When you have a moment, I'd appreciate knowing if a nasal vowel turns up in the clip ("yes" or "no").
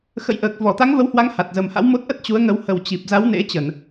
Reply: no